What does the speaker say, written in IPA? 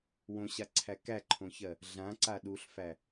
w õ ɕ a ǀʰ æ k æ ǃʰ õ ç ɜ | ɮ ã ǀ a ɗ u ɬ f æ

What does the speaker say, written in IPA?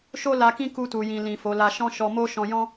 ʃ o˦ l a˧ k ĩ˦ k u˧ t u˨ j ĩ˨ l ĩ˨ f o˨˦ l a˧ ʃ ɔ̃˦ ʃ ɔ˧ m o˦ ʃ ɔ̃˧ j ɔ̃˦

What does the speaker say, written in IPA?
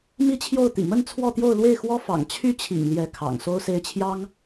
m i˥ t͡ɕʰ j o˥˩ ʊ̯ t̪ ḭ˨˩ m ə˥˧ n t͡sʰ w ɔ˥˧ t̪ j o˥˧ ʊ̯ l w e˥˩ ɪ̯ x w ɔ˥ f ɑ̰˨˩ ŋ t͡ɕʰ y˥ t͡ɕʰ ḭ˨˩ ŋ l j ɛ˧˥ kʰ ɑ̰˨˩ ŋ s o˥ ʊ̯ s e˥ ɪ̯ t͡ɕʰ j ɑ˥ ŋ

